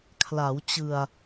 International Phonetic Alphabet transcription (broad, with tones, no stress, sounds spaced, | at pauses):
kʰ l a˩˦ w t͡ɕ ɯ˨˩ a̯